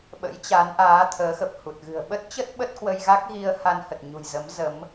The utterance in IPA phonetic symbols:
ɓ ə̰˧˥ j t͡ɕ a˨˦ n ʔ aː˨˦ t̪ʰ əː˨˦ x ə˨˩ p̚ h u˨˩ t̚ ɣ ɨ̤˨˩ ə̯ ɓ ə˦˥ t̚ t͡ɕ ə˦˥ t̚ ɓ ə˦˥ t̚ k w ə˧ j ɣ a˦˥ k̚ ɣ i˧ ə̯ h a˧ n h ə˨˩ t̚ ɲ ṳ˨˩ j z ə˨˦ m z ə˨˦ m

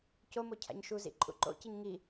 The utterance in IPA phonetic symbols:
c o m o cʰ a̰ ɲ ʃ u z ḭ ǃʼ ṵ ǃ o̰ c i ɲ ŋ i

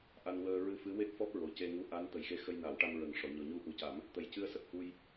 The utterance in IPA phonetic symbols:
ʔ a˧ n w əː˧ ɹ ɨ˧ f ɨ˧˥ w e˦˥ k̚ f ɔ˦˥ p̚ ɹ o˨˩ c e˧ ŋ u˧ ʔ a˧˥ n t̪ ə˨˩ j x e˧ x ə˧ j n a˨˩˦ w ʈ a˧ m ɹ ə˨˩ ŋ ʂ ɔ˨˩˨ ɲ ɔ˨˩ ɲ u˧ ʔ u˨˩˦ c a˨˩˦ m | t̪ ə˨˩ j c ɨ˧ ə̯ s ə˨˩ k̚ h u˧ j

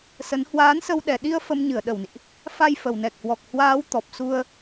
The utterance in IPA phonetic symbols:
s ə˨˦ n h w aː˨˦ n s ə˧ w ɗ ɛ˨˩ ɗ i˧ ə̯ f ə˧ m ɲ ɨ˧˩ ə̯ ɗ ə˧˩ w n ḭ˧˨ ʔ | f a˧ j f ə˨˩ w n ɛ˨˩ k̚ h w ɔ˨˩ k̚ h w aː˨˦ w t̪ ɔ˨˩ p̚ s u˧ ə̯

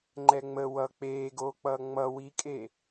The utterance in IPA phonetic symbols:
ŋ͡ǃ ɛ ŋ͡m ə w ʌ k͡p eː ɡ oː k͡p ʌː ŋ͡m ʌ w i kʼ e

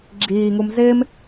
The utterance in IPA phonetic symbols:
ɡ͡ǁ iː ŋ u m z ɪː m

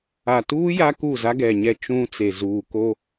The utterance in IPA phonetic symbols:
a˨ t uː˦ j a˦ k u˦˨ z a˦ ɡ ɛ˨ ɲ ɛ˦ t͡ʃ ũ˦ t͡s e˨ z uː˨ k o˦

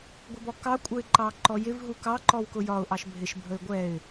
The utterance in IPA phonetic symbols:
ɡʷ ɪ b ɔ k ɑ kʷʼ ə ɪ̯ ǃ ɑ ǃ ɔ j ɪ v ɦ u k ɑ ǃ ɔ w k ʊ j ɒ ʊ̯ ʔ ɑ ʃ bʱ ɪ ʃ bʱ ə ɪ̯ ɡʷ ɛ ɪ̯

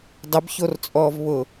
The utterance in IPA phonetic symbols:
dˤ ɪ b ç o r t͡sʼ ɔː v β ʊː

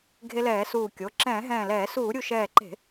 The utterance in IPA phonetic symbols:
ɡʱ e˧ l ɛː˧˩˧ s uː˧˩ kʲ o˩˧˩ ǁ ɛ̃ː˧˩˧ ɦ ɛ̃ː˧˩ l ɛː˧˩˧ s uː˧˩˧ ɾʲ u˧˩ ʃ ɛː˧˩ ǃ e̤˧˩˧

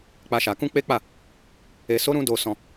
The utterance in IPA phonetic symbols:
k͡p a˦ ʃ a˧ k ũ˦ k͡p e˦ k͡p a˦˨ | e˧ s o˦ ɾ ũ˦ d o˧ s ɔ̃˧

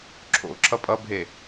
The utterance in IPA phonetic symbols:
ǁʰ o̰ ǁʰ ʌ pʼ ʌ bʱ e

